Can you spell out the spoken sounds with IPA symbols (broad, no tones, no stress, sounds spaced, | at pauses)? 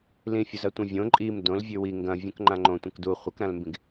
l ĩ fʲ u z ɐ tʷ ɐ̃ vʲ õ ǃʼ i m d õ l vʲ ʉ w i ŋ ɡ ɐ̃ vʲ ũ k ŋ͡ǃ ã ŋ͡ǃ õ tʷ ɐ̃ k d u χʷ ɐ k ɾ ã l m b ĩ ɡ